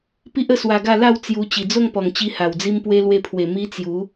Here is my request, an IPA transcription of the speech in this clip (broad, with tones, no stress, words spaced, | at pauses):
pi˦ʔ ə˥˧swa˧ɡa˥˧ la˥˧w t͡sju˧ t͡ɕi˨˩d͡zo˥˧ŋpɔ˨˩ŋt͡ɕi˧ ha˨˩wd͡zi˦mpwe˦ lwe˧pʰwe˨˩ mi˦t͡sju˨˦